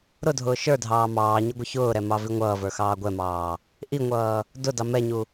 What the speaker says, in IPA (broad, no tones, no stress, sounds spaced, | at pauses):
ɾ ʊ dʱ ʊː ʃ ə˞ dʱ ɑː m ɑː ɲ ɪ ɡʷ ɪ ç ʊː ɾ ɛ m ɑ v i ŋʷ ʌː v ə˞ x ɑː ɡʷ ɛ m ɑː | ʔ i ŋʷ ʌː | d ʊ d ɑ m ɛ ɲ u